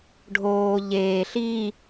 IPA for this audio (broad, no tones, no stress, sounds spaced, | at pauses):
ɖʱ oː ʎ eː ɬ i